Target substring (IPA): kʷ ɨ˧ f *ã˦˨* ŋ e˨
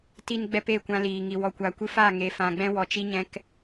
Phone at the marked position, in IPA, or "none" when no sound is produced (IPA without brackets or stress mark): a˦˨